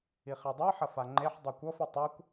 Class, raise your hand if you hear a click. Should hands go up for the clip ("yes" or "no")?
yes